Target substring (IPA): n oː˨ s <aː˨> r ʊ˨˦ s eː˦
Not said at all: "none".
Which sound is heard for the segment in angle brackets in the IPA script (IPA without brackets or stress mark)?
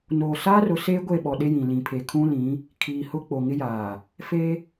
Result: aː˦